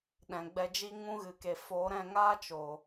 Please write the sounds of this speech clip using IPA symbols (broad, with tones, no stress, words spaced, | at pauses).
ɗɛ̃˨ɡ͡bɛ˧d͡ʒi˦ ŋũ˦ɣɨ˨ke˨ fo˨˦ ɾɛ̃˦˨ŋaː˦t͡ʃo˨